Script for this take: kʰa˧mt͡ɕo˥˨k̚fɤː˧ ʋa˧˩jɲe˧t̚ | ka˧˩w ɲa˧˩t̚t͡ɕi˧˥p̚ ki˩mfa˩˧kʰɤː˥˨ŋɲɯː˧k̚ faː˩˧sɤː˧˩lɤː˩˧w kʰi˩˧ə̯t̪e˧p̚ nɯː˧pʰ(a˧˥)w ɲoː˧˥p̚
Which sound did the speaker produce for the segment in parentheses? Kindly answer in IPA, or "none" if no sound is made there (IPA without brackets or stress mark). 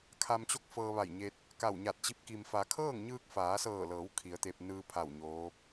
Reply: a˧˩